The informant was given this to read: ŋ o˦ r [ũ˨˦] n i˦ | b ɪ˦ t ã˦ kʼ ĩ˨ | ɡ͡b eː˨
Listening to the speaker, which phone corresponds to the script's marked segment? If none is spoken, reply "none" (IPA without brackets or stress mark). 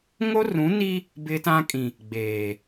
ũ˨˦